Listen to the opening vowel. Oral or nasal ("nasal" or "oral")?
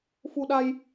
oral